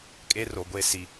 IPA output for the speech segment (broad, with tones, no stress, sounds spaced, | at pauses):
kʼ e˦ r o˨ ɡʷ e˦ s i˨